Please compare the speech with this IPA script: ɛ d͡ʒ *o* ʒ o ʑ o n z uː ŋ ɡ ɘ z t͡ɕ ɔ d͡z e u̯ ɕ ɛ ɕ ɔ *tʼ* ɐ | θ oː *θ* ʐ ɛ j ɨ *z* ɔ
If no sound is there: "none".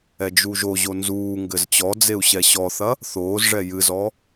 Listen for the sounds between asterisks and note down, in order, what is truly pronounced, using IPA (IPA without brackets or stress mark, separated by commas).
u, θ, z, z